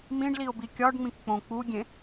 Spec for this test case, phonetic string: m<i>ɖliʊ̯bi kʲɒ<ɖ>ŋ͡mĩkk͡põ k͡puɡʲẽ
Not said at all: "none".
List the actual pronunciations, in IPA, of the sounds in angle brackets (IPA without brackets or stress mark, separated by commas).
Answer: ĩ, ɖ